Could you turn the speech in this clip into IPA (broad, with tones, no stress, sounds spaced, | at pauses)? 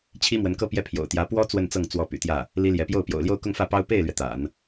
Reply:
t͡ɕʰ i˥ m w ə˧˥ n k ɤ˥ p j ɛ˥˩ pʰ j o̰˨˩ ʊ̯ t̪ j ä˧˥ p w ɔ˥ t͡s w ə˥˧ n t͡s ɤ˥˩ ŋ t͡s w ɔ˧˥ p y̰˨˩ t̪ j ä˥˩ | l i˥ l j ɛ˧˥ p j o˥˩ ʊ̯ p j o̰˨˩ ʊ̯ l j o˥˧ ʊ̯ k ʊ˥˧ ŋ f ä˥˩ p ɑ˥ ʊ̯ p e˥˩ ɪ̯ l ɥ ɛ˩ t̪ a̰˨˩˦ n